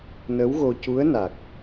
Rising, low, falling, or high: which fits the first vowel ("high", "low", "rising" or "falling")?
rising